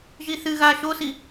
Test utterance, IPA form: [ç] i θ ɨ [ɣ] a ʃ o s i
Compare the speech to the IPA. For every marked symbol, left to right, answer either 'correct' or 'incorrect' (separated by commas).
incorrect, correct